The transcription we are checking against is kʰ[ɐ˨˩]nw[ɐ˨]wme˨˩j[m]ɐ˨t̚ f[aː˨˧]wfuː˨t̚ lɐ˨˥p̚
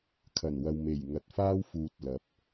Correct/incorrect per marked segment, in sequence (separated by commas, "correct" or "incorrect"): correct, correct, incorrect, incorrect